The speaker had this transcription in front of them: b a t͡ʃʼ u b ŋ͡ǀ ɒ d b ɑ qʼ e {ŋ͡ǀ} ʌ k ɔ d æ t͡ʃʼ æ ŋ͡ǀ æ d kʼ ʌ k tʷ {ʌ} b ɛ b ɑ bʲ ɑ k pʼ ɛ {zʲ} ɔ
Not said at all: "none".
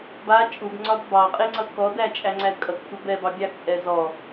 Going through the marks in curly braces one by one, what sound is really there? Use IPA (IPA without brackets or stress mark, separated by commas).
ŋ͡ǀ, ʌ, z